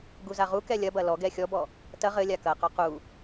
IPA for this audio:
ɡ u z a ʁ u k ɛ lʲ ɐ b ɐ l ɔ ɡ ɛ xʲ ɔ b ɔ | t ɐ ʁ ɘ lʲ a k ɐ q ɔ q u

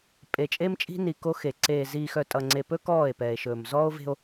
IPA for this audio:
pʼ e˨ t͡ʃʼ e˦ m t͡ʃʼ i̤˦ n i˨ k o˦ x e˨ ǀ eː˨ z iː˨ x œ˨ tʼ ʌ˨ ŋ͡ǀ e˨ p ɵ˦ k ɔː˦˨ e̯ p ɛː˨ e̯ ʃ ɵː˨ m z ɔː˦ o̯ v e̤˦ o̯

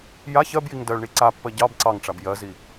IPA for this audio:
j a ç ɜ b j i ŋ d ɜ ɭ ɳ i ǀ a pː ɜ ɟ ɑ b ǀ ɑ ŋ ʈ͡ʂ a b j ɜ z i

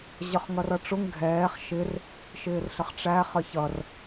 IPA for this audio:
ʑ ʌ χ ŋ ʌ r ʌ ʈ͡ʂ ʊ ŋ ɡʱ ɛː χ ʃ ɪ r | ʃ ɪː r ɬ ə χ ʈ͡ʂ æ χ ə ç ʌ r

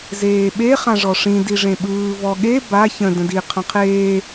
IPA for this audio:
z eː ɓ e χ ã ʐ ɔ ʂ ĩ d i ʐ ẽ ɓ ɯː v ɔ ɠ e b a ç ə̃ d ə̃ d i qʰ ə̃ qʰ eː

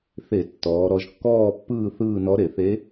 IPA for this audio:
θ e˧˩˧ tː ɔː˩˧ ɾ ɔ˩˧ ʒ kː ɔː˦˨ pː ɯː˦˨ θ ɯː˦˨ n ɔ˧˥ ɾ e˧˩˧ θ e˧˥

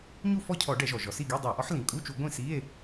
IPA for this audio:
ɲ u˥˨ f ɔ˥˨ cʰ ɔ˧˩˧ ɖ ɛ˧˩˧ ʒ ɔ˩ ʒ ɔ˩ s i˥˨ ɡ e˧˥˧ dˤ u˧˩˧ o̯ ʔ ɔ˨˥ ħ l ĩ˩ kʼ u˧˥˧ t͡ʃ u˧˩˧ ɡʷ ĩ˥˨ s i˧˥˧ e̯

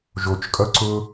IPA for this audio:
ʒ o t͡ʃ kʼ ʌ ǀ ʊ

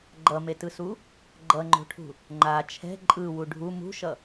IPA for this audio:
ɡ͡ǃ ʌ m e t ɯ s u | ɡ͡ǃ ʌ ŋ͡ǃ o̤ ʈʰ ṳ | ŋ͡ǃ a t͡ʃʰ ɛ̤ ǃʼ ɯ w u ɖʱ u m ṳ ʃ ʌ

